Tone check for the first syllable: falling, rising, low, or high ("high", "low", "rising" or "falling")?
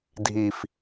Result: low